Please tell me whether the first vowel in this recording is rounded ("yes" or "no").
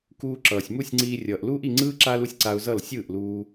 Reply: yes